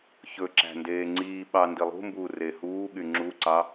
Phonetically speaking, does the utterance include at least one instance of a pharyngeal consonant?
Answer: no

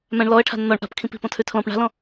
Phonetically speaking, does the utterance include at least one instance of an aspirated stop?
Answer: yes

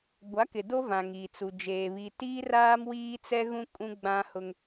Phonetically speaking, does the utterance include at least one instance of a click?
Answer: no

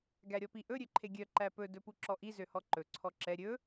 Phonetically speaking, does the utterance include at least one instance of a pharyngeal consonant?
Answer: no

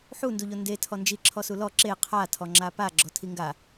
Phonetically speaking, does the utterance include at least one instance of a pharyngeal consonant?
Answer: yes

